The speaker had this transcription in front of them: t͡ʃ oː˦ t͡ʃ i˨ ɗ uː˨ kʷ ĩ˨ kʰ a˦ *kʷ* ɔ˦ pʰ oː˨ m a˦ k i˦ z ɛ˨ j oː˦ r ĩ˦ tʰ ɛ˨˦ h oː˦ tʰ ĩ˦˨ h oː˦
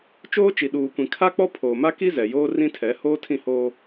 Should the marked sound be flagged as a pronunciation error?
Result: yes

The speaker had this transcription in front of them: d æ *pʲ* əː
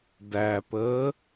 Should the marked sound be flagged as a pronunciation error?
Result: yes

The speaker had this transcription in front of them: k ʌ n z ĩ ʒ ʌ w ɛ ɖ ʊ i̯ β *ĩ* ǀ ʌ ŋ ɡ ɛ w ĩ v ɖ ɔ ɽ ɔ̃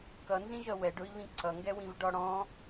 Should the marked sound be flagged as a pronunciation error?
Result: no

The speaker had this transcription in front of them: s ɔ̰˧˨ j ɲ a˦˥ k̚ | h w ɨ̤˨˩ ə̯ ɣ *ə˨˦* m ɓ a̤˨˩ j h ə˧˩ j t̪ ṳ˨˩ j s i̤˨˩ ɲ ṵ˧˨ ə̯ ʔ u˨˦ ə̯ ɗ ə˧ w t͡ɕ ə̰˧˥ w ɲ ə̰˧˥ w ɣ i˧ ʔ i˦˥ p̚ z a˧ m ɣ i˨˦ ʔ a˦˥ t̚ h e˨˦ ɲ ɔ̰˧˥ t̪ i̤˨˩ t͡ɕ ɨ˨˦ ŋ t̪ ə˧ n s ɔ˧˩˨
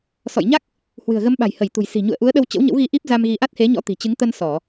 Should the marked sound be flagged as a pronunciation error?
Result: no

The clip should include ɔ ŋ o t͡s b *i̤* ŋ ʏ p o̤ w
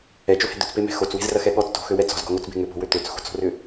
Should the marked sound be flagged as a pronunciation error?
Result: yes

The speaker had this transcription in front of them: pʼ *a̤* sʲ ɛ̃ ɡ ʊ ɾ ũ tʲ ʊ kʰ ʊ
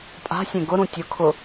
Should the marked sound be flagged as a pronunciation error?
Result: no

